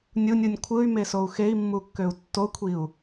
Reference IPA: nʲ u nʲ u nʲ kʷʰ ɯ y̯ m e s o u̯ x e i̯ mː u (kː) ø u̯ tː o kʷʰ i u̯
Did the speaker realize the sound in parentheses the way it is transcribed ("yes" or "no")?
yes